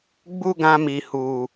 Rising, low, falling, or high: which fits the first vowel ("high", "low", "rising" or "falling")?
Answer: high